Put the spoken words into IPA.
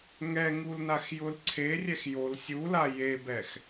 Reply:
ŋ ɛ ŋ u l n a x j ʊ l ǀʰ e rʲ ɛ x j o l sʲ u l a j e b ɛ x

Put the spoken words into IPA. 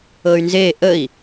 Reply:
ɤ y̯ n z e ʔ ə i̯

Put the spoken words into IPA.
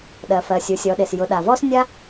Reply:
ɗ ɜ˩ f ɜ˩ sʲ u˩˧ sʲ ɔ˩˧ ɗ e˩ s j ʊ˩˧ ɗ a˩ v ɔ˥ s nʲ a˥

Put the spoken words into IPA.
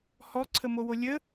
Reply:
h ɔ ǀʰ ə m o w o lʲ ə

